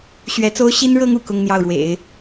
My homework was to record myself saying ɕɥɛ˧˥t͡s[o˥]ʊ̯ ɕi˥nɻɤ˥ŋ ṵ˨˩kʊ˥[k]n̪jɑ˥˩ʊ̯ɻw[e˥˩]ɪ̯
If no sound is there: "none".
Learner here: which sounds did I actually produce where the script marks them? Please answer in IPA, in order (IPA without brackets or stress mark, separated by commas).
o˥, ŋ, ḛ˨˩˦